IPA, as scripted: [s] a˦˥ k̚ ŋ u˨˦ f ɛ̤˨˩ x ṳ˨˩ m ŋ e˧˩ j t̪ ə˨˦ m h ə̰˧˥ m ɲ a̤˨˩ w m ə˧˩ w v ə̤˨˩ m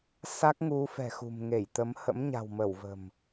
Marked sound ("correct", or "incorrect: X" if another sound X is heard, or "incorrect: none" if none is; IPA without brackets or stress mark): correct